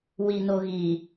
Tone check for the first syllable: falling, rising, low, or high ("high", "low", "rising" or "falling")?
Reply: low